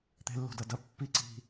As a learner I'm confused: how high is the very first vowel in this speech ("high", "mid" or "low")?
mid